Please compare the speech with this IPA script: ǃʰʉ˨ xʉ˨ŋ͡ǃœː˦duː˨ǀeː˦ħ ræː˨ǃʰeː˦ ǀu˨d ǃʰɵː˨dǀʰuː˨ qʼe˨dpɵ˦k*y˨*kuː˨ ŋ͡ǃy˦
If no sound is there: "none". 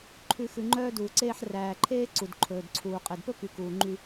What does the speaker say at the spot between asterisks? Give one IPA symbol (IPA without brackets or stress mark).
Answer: y˨